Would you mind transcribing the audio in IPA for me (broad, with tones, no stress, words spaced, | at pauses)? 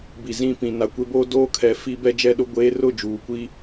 bi˨zĩ˦˨pĩ˨ na˨kʷe˦boː˦ doː˦kʰɛ˨˦ fi˦ bɛ˦d͡ʒɛ˦ɗʊ˦ ɡʷeː˦ rʊ˦˨d͡ʒuː˨kʷi˦